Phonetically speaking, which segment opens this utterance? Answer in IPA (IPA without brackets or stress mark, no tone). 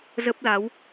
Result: z